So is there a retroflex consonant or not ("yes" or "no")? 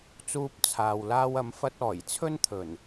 no